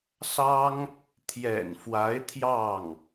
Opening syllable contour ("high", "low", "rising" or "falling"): high